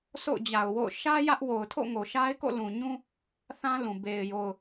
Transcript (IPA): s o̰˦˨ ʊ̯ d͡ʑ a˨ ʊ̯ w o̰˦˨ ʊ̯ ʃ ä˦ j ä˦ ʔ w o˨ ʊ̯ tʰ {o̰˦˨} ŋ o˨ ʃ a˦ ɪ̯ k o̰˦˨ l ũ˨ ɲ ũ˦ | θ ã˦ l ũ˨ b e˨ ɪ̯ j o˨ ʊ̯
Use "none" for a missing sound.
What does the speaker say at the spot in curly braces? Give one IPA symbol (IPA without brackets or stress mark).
o̰˦˨